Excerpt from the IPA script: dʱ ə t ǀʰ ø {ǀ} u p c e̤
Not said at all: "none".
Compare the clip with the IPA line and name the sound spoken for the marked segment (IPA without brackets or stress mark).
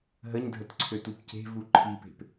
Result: t